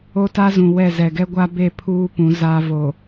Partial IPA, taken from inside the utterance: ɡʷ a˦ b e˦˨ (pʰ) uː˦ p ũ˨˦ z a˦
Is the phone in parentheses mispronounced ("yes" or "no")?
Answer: no